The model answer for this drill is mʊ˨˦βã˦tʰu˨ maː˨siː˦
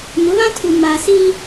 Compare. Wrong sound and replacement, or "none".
none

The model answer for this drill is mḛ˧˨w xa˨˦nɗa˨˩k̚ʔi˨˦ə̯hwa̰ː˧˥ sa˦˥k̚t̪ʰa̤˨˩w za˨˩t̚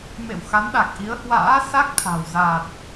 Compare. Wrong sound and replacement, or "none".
none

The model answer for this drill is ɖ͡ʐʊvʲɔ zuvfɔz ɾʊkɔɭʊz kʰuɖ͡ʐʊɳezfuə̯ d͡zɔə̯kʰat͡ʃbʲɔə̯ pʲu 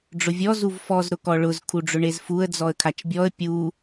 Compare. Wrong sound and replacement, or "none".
none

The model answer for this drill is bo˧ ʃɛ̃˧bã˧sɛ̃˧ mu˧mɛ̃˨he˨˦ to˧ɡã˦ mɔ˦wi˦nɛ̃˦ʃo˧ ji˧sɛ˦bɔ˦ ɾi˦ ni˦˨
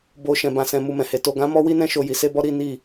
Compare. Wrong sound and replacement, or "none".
ɛ˦ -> e˦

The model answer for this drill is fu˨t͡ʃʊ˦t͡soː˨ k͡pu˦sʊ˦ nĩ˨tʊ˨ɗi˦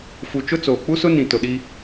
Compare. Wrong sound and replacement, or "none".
none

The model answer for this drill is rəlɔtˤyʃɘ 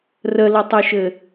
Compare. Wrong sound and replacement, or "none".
ɔ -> ʊ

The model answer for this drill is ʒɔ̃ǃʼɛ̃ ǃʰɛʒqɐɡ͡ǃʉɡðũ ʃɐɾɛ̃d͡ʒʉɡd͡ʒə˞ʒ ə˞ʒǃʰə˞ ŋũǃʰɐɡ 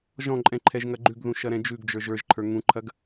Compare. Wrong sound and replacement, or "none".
q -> ŋ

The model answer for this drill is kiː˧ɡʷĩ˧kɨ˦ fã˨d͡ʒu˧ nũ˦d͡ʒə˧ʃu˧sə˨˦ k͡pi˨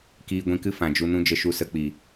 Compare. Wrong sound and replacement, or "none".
none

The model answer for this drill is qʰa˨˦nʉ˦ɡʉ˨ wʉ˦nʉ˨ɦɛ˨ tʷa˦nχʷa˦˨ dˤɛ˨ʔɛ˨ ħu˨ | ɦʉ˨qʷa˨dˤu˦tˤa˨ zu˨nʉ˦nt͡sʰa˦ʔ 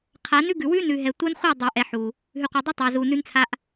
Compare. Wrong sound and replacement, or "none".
none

